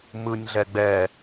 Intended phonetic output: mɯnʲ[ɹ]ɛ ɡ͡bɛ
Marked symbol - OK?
no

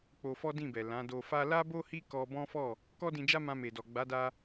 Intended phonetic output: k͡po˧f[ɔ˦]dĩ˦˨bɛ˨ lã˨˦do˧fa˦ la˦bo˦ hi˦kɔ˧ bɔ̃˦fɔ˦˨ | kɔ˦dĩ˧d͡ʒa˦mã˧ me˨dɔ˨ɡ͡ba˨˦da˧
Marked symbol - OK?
yes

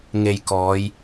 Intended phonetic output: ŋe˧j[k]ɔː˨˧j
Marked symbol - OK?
yes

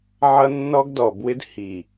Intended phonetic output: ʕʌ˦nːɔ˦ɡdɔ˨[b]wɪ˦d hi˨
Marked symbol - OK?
yes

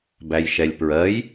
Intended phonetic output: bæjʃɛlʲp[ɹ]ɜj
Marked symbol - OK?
yes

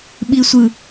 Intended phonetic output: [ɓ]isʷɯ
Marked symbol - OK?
yes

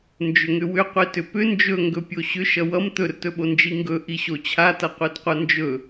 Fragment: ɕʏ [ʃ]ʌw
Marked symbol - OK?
yes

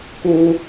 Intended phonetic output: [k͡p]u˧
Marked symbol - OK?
no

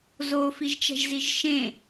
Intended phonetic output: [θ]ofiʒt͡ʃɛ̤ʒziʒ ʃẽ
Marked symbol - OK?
no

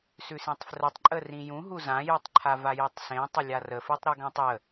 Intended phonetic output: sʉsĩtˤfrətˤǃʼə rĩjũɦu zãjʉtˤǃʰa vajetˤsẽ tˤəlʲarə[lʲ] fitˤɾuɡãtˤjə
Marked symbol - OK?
no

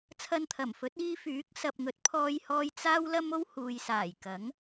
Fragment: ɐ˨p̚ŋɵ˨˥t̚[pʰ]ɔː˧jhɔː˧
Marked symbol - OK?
yes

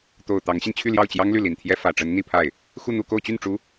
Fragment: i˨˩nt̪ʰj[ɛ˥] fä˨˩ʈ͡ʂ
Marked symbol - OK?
yes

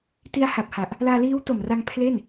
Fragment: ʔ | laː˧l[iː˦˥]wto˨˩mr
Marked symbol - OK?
yes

